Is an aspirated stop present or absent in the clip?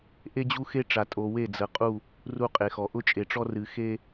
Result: absent